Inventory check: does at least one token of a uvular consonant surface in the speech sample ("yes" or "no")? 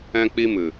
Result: no